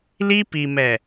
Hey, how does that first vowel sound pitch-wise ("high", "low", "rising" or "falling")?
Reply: high